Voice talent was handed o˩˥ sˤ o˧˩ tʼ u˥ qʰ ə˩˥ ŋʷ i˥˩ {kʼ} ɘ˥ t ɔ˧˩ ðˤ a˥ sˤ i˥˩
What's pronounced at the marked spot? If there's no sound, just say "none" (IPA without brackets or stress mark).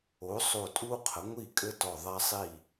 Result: kʼ